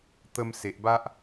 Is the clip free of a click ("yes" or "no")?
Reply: yes